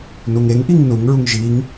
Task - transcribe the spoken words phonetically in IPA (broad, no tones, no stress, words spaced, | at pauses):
nuŋeŋʔiŋ nuŋɹuŋ ʒiŋ